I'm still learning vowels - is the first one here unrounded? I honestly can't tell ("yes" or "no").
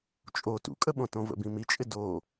no